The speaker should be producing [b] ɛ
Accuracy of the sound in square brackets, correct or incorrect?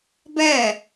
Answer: correct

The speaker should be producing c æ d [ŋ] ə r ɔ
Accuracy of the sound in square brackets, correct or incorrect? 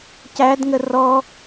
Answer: correct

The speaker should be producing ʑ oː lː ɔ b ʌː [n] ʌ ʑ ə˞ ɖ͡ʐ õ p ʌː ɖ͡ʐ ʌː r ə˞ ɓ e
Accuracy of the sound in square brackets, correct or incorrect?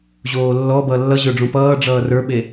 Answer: incorrect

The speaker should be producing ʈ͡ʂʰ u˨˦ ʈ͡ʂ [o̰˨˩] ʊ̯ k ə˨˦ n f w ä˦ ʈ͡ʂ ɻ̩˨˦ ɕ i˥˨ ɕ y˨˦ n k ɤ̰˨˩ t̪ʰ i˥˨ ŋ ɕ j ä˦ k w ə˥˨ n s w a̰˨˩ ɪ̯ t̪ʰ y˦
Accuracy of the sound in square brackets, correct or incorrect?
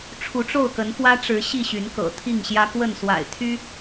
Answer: incorrect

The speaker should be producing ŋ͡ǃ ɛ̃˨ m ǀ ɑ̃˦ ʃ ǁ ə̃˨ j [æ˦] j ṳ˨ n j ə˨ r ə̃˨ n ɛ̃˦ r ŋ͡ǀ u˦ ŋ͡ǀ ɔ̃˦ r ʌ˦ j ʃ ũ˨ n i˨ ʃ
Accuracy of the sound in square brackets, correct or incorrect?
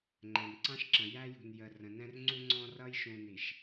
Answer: correct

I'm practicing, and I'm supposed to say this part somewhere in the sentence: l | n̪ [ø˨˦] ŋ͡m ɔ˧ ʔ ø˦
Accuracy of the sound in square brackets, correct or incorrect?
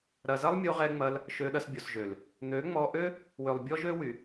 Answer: correct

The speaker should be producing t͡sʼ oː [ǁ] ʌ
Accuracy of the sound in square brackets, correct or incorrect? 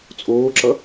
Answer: correct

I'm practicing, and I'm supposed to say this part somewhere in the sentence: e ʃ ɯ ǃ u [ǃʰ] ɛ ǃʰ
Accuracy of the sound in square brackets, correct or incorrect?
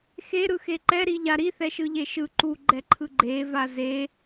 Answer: incorrect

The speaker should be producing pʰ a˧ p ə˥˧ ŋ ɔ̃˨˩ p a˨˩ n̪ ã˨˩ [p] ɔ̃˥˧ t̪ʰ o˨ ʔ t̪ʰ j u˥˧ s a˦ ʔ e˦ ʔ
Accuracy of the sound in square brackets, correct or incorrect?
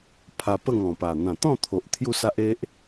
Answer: incorrect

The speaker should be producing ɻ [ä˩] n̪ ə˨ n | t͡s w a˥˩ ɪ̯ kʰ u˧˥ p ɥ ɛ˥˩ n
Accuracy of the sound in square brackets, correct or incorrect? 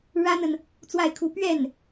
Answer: incorrect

